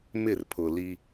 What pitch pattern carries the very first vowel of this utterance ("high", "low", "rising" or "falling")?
falling